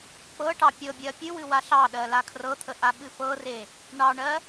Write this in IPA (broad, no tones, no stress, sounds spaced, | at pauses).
k͡p ɤ ʈ ɑ pʲ ɤ bʲ ɜ pʲ ɨ w ɨ w a ɬ ɑ ɗ ɜ l a kʰ r ɤ t̪ʰ ə ʔ a ɓ ɨ f ɤ r e | ɳ ɑ ɳ ɜ